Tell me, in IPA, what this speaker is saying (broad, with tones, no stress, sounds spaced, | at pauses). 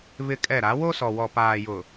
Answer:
β ɪ˦ kʼ ɛ˦˨ ɾ a˨˦ w o˦ s ɔ˨ w ɔ˨ p aː˨ j ʊ˨